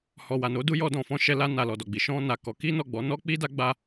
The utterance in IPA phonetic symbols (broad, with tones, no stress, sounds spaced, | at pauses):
h ɔ˨ w a˨ n o˨˦ d u˦ j ɔ˧ d ɔ̃˨ f ɔ̃˧ ʃ ɛ˧ l a˧ n a˨ l ɔ˨ d ɔ˨ ɡ͡b i˨ ʃ ɔ̃˧ n a˨ k ɔ˨˦ k i˦ n ɔ˦˨ ɡ͡b ɔ˨˦ n ɔ˦ k͡p i˦ d a˦ ɡ͡b a˦